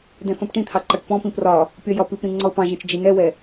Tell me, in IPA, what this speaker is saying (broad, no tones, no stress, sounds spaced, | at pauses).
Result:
d ɛ̃ θ ɔ̃ p ʈ ĩ t̪ʰ ɑ ǃ ɒ ʈ p ɔ̃ p ĩ p r ɒ | pʲ ɒ j ɒ p i p ɾ ĩ ŋ͡ǀ ɔ ʊ̯ p ɑ̃ ʒ ɛ̃ t͡ʃ d͡ʒ i n ɛ w ɛ